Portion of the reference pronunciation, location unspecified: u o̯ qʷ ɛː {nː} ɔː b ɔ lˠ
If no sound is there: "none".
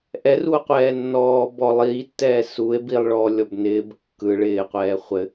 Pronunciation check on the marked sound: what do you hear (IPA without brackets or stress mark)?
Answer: nː